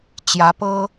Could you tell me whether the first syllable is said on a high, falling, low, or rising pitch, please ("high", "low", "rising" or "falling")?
rising